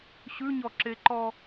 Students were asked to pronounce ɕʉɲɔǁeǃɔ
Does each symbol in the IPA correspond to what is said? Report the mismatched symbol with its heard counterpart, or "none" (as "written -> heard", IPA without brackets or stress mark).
none